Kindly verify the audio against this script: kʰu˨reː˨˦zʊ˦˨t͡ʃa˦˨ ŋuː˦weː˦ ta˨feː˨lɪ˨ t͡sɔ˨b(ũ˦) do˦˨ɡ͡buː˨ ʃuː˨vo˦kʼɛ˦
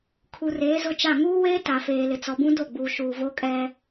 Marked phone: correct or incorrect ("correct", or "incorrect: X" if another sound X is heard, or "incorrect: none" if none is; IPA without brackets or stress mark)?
correct